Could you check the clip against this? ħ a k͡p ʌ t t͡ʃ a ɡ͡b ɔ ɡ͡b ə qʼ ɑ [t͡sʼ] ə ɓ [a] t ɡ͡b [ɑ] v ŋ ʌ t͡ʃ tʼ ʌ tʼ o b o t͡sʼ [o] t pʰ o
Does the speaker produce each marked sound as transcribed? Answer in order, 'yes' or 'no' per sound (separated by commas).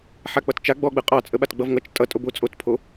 yes, yes, no, yes